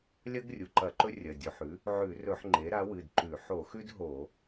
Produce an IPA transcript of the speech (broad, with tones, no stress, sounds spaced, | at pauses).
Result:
lʲ ɐ˦ ɡ rʲ u˩˧˩ ǃ ɐ˧˩˧ ǃ ɵ˦ rʲ ɐ˩˧˩ dʲ o˧˩˧ ħ ʉ˩˥ | ʕ ʉ˧˩˧ r ɵ˧˩˧ ħ ŋ͡ǃ e˩˥ ɾ a˩˥ w ɨ˩˧˩ d ǃ ʉ˧˩˧ ħ o˧˩˧ x ʉ˦ d ɦ o˧˩˧